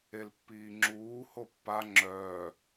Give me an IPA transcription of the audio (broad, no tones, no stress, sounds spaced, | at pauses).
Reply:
e l pː iː ŋ͡ǁ uː h o pː a ŋ͡ǁ œː